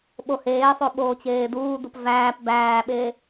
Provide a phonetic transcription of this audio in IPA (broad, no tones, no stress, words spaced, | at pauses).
ɓoheːsˤo ɓoːt͡ɕeːduːdup væːp bæːɓe